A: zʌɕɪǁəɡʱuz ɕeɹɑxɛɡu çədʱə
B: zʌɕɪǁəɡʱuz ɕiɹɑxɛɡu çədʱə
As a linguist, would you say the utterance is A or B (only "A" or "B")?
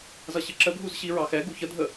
B